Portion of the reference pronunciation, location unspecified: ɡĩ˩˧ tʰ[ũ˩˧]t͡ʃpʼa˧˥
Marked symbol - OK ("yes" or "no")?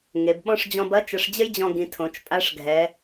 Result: no